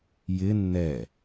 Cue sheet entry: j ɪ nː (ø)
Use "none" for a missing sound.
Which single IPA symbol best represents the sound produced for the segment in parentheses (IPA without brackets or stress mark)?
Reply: ɛ